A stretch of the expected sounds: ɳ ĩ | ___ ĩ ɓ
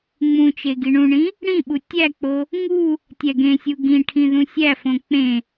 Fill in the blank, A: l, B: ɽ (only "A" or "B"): B